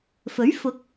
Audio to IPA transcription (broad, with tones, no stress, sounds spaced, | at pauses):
f ɵ˨˥ ɥ f ʊ˨˥ k̚